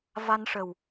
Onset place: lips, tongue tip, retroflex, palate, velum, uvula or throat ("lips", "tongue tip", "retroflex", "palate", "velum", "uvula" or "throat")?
lips